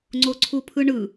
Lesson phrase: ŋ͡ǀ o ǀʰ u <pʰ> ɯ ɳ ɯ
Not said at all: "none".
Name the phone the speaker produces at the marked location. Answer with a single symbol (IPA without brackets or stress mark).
pʰ